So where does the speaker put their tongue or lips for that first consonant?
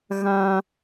velum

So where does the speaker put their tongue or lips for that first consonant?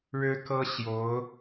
retroflex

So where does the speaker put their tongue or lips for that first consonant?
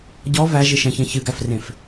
palate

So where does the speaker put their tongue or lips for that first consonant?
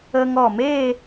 velum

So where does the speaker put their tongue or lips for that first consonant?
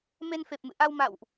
lips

